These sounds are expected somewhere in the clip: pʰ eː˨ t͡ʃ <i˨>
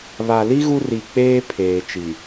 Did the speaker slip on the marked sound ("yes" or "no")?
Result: no